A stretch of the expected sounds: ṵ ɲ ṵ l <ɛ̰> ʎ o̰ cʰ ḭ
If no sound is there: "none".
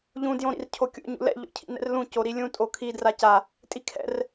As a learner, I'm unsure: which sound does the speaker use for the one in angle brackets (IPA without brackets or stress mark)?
ɛ̰